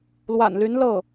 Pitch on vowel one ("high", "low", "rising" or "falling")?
low